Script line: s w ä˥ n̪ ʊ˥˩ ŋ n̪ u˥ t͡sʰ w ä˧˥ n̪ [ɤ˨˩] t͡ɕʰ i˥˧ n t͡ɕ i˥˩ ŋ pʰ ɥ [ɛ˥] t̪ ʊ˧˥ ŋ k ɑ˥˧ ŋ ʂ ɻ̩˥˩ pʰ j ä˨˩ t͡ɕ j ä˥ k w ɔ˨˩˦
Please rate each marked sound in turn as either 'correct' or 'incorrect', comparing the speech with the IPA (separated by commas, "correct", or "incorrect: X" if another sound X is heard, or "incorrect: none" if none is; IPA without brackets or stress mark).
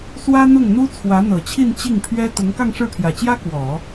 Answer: correct, correct